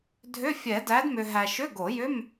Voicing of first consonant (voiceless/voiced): voiced